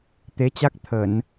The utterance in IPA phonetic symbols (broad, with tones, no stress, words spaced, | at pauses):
t̪e˨˦t͡ɕa˦˥k̚t̪ʰə˧˩˨n